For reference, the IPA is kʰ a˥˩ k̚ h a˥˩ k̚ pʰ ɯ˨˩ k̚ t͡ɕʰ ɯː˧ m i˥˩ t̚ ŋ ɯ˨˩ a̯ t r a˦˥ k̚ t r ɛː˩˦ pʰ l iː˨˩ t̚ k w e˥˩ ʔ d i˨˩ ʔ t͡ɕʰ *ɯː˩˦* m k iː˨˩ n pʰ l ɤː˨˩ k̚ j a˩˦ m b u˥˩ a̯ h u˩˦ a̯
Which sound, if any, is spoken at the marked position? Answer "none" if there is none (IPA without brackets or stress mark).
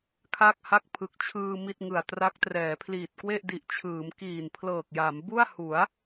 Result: ɯː˩˦